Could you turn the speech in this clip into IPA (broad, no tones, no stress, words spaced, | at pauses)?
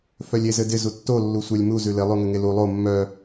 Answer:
fœlʲezɘdɪ zutːo lːusʷœlʲmu zʉlɪ lˠʉŋɘŋelu lˠo mːœ